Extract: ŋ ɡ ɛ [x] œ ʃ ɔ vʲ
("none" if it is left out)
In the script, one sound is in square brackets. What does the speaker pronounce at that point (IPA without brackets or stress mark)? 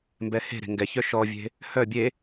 ç